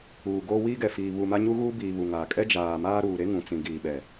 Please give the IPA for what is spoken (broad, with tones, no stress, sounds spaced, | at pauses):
uː˨ ɡ oː˦ w iː˦ ɡ ɛ˨ f iː˨ β u˨ m a˦ ɲ u˦ ɣ uː˦ b iː˨ β u˨ ŋ aː˨ kʼ ɛ˦ d͡ʒ aː˨ m aː˦ ɾ uː˨ ɾ e˦ ŋ ũ˨ t͡s ĩ˨ ɡ iː˨ ɓ ɛ˨